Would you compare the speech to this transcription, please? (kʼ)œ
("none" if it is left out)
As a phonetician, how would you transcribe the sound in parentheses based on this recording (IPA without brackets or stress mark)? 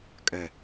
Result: kʼ